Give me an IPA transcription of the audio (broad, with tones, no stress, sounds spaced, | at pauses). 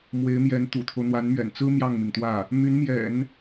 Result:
m w e˧˥ ɪ̯ m j ɛ˧˥ n t̪ ṵ˨˩ t̪ʰ o˦ ʊ̯ n̪ w a˧˥ n m ɥ ɛ̰˨˩ n t͡s ɹ̩˥ m j ɑ˥˩ ŋ m i˩ ŋ t̪ w ä˥˩ | m y˧˥ n m j ɛ̰˨˩˦ n